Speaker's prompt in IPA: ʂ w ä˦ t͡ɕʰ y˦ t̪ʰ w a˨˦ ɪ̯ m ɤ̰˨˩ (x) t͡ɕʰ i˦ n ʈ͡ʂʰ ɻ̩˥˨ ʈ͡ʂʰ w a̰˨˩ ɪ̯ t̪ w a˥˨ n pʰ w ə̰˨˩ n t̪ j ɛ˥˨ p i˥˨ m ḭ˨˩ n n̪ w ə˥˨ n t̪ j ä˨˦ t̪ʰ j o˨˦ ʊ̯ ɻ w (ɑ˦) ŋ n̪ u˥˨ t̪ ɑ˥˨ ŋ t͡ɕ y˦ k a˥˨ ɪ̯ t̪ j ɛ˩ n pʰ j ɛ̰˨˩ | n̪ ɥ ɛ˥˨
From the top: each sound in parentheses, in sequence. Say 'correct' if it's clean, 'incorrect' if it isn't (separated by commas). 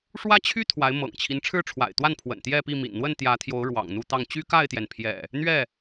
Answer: incorrect, incorrect